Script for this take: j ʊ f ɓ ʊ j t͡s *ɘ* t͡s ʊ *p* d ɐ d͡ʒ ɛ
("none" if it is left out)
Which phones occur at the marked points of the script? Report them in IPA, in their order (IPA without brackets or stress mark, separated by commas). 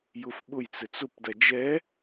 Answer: ɘ, p